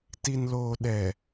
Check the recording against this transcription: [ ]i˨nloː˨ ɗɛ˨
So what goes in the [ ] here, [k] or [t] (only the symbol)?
t